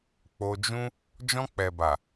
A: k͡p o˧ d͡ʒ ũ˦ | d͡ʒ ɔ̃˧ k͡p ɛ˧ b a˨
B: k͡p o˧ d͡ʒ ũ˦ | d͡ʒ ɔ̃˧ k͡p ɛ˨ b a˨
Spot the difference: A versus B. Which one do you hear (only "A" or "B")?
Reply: B